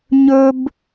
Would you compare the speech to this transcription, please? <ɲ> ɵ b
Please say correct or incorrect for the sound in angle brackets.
correct